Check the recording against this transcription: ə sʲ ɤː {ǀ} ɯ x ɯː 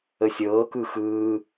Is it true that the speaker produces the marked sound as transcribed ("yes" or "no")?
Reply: no